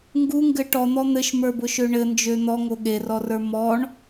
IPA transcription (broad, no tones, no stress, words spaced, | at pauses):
ŋɡuŋɡɘ ʈɔn̪ɔ n̪ɘʃmə˞bʊʃø ɳɘnd͡ʒø n̪ɔŋo ɠerɔrə˞ mɔɳ